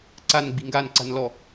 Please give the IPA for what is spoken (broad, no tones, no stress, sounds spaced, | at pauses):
ǀ a n ɡ͡b i̤ ŋ ɡ a n ǀ a̤ n l ɔ